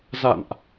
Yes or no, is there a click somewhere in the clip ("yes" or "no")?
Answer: no